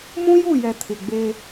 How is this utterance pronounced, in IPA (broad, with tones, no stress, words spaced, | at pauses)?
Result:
mũ˦ju˦˨jɛ˨ tʰɪ˨ɡ͡be˦